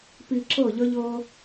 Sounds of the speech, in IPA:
p i˧ ǁ ɤ˦˨ ʎ ʌ˦ ʎ ɤ˦

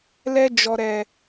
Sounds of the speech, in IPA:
l ɛ˧ d͡ʒ ɔ˨ ɾ ɛ˨

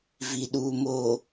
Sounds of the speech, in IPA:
v i˨ ɗ uː˨ m oː˨

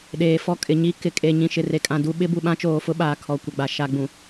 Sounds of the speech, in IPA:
ɗ eː˨ f ɔ˦ kʼ ɪ˨ ɲ i˦ k ɪ˨ kʼ e˨ ɲ ĩ˨ ʃ ɪ˨ r e˨ kʼ ã˨ d u˦ ɓ ɪ˦ b u˨ ɓ ã˦ t͡ʃ oː˨ f ʊ˦ ɓ aː˨ kʰ ɔ˨ kʷ ɛ˨ ɡ͡b a˨ ʃ a˨ ɡ͡b ũ˨

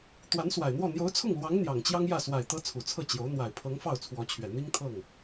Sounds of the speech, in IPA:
t̪ w a˧˥ n s w a˨˩ ɪ̯ n̪ w ɔ˥˩ n̪ j o˧˥ ʊ̯ t͡sʰ ʊ˥˩ ŋ l w ɑ˧˥ ŋ n̪ j ɑ˨˩ ŋ t͡ɕ j ɑ˥ ŋ j ä˥˩ s w a˨˩ ɪ̯ t̪ ɤ˧˥ t͡sʰ u˨˩ t͡sʰ ɤ˥˩ t͡ɕ j o˧˥ ʊ̯ n̪ w a˨˩ ɪ̯ pʰ ɤ˧˥ ŋ f ɑ˥˩ ʊ̯ t͡sʰ w ɔ˧˥ t͡ɕʰ ɥ ɛ˨˩ n̪ i˥ ŋ t̪ʰ ɤ˥˩ ŋ

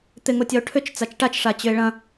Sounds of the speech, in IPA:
t̪ ɪ ŋ o tʲ ɐ o̯ ʈʰ ʏ t͡ʃ t͡s a t͡ʃ ʈ a t͡ʃ ʂ a t͡ɕ ʏ e̯ ɭ ɐ̃

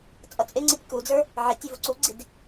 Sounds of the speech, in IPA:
t͡sʼ ʌ t͡sʼ ɪ ŋ͡ǀ i tʲ k u d͡z ə˞ | ʕ ɪ tʲ i v u ǀ u ɡ͡ǀ i d

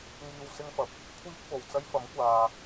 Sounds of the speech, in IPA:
ŋ iː˧ w s ɪ˥ ŋ f ɐ˨ p̚ | kʷʰ iː˥ k̚ f o˨˩ w t͡s ɐ˥ j f ɐ˨˥ m kʷ aː˨

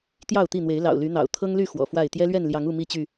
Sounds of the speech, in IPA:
t̪ j ɑ˥˨ ʊ̯ t̪ i˥˨ n̪ w e˨˦ ɪ̯ l ɑ̰˨˩ ʊ̯ l y˨˦ n̪ ɑ̰˨˩ ʊ̯ t̪ʰ ɤ˦ ŋ l y˥˨ x w ɔ̰˨˩ f w a˥˨ ɪ̯ t̪ j ɛ˦ l ɥ ɛ˥˨ n l j ɑ˨˦ ŋ u˥˨ m i˥˨ t͡ɕ y˥˨

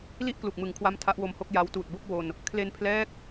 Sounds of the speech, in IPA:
l i˥˩ ʔ k l u˨˩ k̚ m ɯ˨˩ ŋ kʰ w a˦˥ m tʰ a˦˥ ʔ w o˧ m h o˥˩ k̚ j a˦˥ w t uː˨˩ t̚ b o˥˩ k̚ w o˧ n | kʰ l e˧ n pʰ l ɛː˦˥ k̚

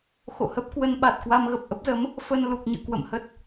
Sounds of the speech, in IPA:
x o̰˧˨ h ə˦˥ p̚ k w ə˧ n ɓ a˨˩ t̚ k w a˧ m ɣ ə˨˩ p̚ ʔ ə˦˥ p̚ z ə˨˦ m | f ə˧ n l u˨˩ k̚ ɲ ɨ̰˧˨ k w ə̰˧˨ m h ə˦˥ t̚

